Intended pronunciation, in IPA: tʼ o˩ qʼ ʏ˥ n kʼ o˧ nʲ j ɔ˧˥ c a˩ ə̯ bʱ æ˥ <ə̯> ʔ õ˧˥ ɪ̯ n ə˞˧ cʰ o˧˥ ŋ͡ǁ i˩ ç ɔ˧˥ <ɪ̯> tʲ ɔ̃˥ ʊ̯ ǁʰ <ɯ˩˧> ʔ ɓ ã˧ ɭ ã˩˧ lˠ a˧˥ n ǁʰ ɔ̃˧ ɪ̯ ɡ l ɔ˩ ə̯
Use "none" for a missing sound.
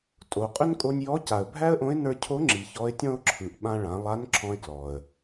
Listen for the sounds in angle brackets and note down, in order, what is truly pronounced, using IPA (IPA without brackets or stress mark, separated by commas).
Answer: ə̯, ɪ̯, ɯ˩˧